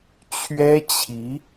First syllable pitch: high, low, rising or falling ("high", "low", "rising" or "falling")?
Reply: high